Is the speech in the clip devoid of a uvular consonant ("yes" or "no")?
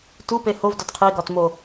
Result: no